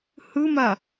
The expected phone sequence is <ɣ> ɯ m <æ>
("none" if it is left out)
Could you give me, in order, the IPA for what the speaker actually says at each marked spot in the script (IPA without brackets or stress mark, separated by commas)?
h, a